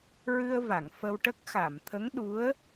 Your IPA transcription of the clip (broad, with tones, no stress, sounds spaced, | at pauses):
ɹ ɨ˧ ə̯ v a˨˩˨ ŋ f ə˧ w ʈ ə˦˥ k̚ x a˨˩˨ m t̪ʰ ə˧˥ ŋ ɗ u˧˥ ə̯